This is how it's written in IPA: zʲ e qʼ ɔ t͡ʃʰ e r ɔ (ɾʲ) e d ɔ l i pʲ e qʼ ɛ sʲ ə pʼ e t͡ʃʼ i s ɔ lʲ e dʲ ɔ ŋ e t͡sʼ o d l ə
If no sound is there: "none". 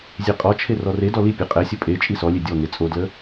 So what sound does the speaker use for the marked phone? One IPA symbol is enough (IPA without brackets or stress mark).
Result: r